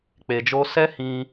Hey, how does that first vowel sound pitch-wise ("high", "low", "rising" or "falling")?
low